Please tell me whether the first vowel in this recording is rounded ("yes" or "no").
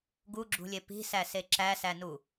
yes